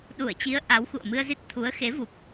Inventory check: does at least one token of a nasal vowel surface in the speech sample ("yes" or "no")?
no